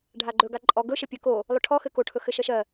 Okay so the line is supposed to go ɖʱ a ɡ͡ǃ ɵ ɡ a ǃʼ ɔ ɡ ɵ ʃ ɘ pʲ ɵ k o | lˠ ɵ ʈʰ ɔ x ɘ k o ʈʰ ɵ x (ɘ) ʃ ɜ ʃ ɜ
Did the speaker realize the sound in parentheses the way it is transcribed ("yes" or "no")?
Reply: yes